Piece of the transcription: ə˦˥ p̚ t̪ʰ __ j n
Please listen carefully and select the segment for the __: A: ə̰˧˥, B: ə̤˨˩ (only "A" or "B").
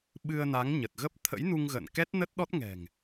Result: A